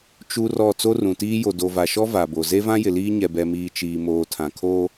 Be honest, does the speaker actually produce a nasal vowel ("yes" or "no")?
yes